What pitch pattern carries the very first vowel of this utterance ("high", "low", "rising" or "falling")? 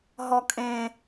high